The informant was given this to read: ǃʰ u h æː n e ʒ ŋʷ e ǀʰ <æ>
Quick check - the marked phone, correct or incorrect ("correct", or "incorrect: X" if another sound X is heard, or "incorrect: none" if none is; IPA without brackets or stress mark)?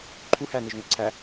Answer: correct